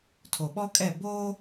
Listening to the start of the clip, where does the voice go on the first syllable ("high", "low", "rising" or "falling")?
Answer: low